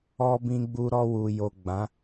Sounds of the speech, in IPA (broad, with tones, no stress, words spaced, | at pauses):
ɔ˧bĩ˧ɡ͡bu˧ ɾɔ˧wu˨jo˨ ɡ͡bã˨˦